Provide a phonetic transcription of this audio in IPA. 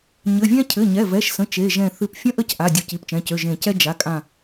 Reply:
ɲɘ˩˧˩vʲɛ̃˥ cʰɘ˩˧˩ɲɛ˩˧˩vɛ˩˧˩ʃsə̃˩˧˩ t͡ʃe˩˧˩ʒɛ̃˧˩ θɨ˧˩pfʲə̃˥ʔə˥c ʔa˩˧˩ dʲo˧˩ci˩˧˩pt͡ʃɛ̃˩˧˩cø˩˧˩ ʒẽ˧˩cɛ˥ d͡ʒa˩˧˩kʼã˧˩

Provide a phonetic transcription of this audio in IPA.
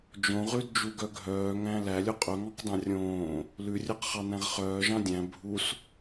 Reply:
d͡ʒõʁʉdd͡ʒuɡœ ɡʱœːŋæ̃ lælʲo qʼɵŋɑ̃qdɑ̃ rʲõː | lʉrʲœqχɑnæ̃ʁ χœːʒɑ̃ dʲæ̃ bʱus

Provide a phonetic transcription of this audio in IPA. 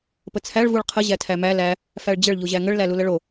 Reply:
pət͡sʰæɭ vuɭqʰə ʑætʰæmæ læ | fæɭd͡ʑəɭ ʎuʑæŋəɭ læluləɭo

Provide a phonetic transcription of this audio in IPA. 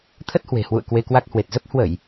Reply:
t̪ʰə˦˥t̚hwe̤˨˩hwṵ˧˨ə̯ kwe˧kwa˦˥k̚ hwe˨˩t̚zə˦˥p̚ hwə˧˩˨j

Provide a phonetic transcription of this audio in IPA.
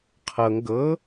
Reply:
qʰɤŋ ɡɤ

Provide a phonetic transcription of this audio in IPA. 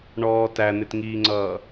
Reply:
ɳɔː tæn̪ɪtŋiːŋ͡ǀʌː

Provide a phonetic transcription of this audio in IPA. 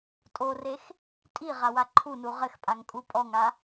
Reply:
tʼorex | tʼi ʁawaǃʰunu ʁɘxpʼaŋ kʼupʼɔŋa

